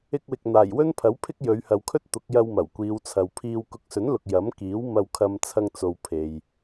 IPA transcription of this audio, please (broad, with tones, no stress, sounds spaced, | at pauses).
ɪ˧ k̚ w ɪ˨ k̚ n̪ aː˨˩ j w ɵ˥ n pʰ ɐ˨˥ w pʰ ɪ˥ k̚ j ɵ˨˧ ɥ h ɐ˨ w kʰ ɵ˥ t̚ t̪ ʊ˨˥ k̚ j ɐ˧ w m ɐ˨˩ w kʷ iː˨˧ w t͡sʰ ɐ˨ w pʰ iː˧ w k ʊ˨˥ k̚ s ɵ˨˥ n l ʊ˨ k̚ j ɐ˨˥ m k iː˨˥ w m ɐ˧ w kʰ ɐ˧ m t͡sʰ ɐ˧ ŋ t͡s o˨ w pʰ e˨ j